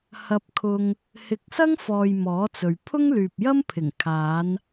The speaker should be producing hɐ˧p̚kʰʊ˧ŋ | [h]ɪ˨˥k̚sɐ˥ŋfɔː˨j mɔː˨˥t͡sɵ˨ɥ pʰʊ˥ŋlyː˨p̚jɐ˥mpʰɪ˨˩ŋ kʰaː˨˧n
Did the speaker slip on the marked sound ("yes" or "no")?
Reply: no